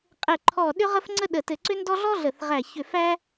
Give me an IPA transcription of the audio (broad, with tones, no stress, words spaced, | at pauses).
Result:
qʼɘ˨˩ǃʰɔ˨˩ ɗʏ˦ʁə˦f ŋ͡ǀə˦ɗə˨˩ tɘ˨˩ǀʏ˦ndɔ˦ ɮɔ˦ɮə˨˩θʁæ˨˩çʏ˨˩ fæ˦